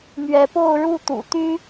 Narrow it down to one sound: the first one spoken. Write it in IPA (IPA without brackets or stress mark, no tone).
m